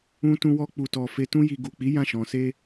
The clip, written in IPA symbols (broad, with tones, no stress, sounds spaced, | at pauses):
ũ˧ t ũ˧ w ɔ˧ k͡p u˨ t ɔ˨ f e˧ t ũ˦ j i˧ ɡ u˨ k͡p i˨˦ j ã˦˨ ʃ ɔ̃˨ s e˧